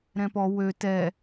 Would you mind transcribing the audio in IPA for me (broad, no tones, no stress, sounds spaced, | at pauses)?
ɾ ɛ̃ p ɔ w ø t ɛ